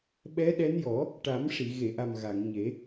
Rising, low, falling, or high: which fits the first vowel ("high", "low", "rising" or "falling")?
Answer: rising